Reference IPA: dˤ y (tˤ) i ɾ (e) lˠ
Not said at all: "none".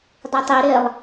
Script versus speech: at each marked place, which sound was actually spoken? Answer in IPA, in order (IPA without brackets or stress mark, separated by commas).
tˤ, e